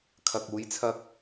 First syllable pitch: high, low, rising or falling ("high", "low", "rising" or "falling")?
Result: low